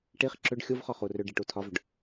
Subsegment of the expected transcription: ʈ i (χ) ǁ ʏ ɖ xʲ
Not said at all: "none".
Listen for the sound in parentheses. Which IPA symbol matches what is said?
χ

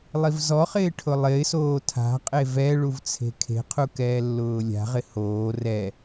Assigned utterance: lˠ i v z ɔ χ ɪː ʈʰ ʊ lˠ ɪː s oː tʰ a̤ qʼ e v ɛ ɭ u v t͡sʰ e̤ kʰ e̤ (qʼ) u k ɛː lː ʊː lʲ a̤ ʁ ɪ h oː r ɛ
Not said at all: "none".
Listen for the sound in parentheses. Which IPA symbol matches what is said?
qʰ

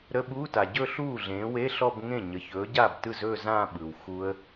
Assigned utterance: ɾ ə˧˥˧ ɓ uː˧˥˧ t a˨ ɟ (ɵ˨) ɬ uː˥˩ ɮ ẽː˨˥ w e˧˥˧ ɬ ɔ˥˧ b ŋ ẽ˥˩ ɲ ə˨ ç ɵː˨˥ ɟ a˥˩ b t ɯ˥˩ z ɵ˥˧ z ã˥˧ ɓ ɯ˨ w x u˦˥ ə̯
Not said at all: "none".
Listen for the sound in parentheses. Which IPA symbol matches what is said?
ɵ˥˧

